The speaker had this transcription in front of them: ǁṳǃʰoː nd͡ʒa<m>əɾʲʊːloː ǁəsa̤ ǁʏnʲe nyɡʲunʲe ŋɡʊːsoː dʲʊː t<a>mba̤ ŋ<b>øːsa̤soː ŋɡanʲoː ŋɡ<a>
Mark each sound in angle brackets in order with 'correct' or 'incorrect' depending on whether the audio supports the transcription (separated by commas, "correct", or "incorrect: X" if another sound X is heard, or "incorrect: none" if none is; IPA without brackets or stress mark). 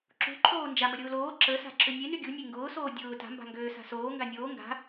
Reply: correct, incorrect: a̤, incorrect: ɡ, incorrect: a̤